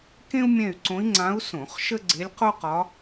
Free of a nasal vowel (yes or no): no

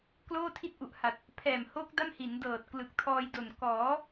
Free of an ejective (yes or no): yes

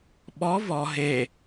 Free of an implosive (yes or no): no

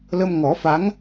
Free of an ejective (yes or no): yes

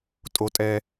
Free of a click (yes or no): yes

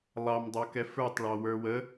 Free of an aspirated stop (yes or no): yes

